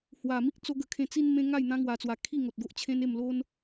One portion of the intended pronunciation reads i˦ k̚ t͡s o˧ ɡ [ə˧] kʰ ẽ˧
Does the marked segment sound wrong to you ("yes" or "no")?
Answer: no